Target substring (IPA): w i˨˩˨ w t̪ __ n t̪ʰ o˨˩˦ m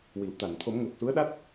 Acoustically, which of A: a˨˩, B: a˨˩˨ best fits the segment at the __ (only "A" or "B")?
B